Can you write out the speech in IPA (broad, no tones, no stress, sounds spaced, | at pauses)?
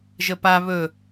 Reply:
ʒ ə p a β ɵ